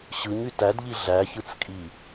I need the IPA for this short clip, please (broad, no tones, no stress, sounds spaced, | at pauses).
ɕ ɯ ɲ y t æ d ʎ i ɮ æ ç ɯ t͡s kʼ i